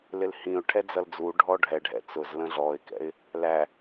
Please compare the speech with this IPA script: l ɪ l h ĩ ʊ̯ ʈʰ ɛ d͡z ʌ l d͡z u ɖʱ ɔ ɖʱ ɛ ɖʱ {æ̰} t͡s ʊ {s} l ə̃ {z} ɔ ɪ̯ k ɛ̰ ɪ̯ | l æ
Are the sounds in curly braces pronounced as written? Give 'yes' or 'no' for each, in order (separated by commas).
no, no, no